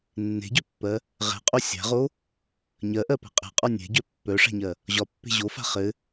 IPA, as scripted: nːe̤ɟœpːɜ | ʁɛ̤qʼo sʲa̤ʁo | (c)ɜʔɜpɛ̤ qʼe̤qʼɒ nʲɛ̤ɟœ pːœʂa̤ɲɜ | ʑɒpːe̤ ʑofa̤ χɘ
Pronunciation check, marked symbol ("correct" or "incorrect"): incorrect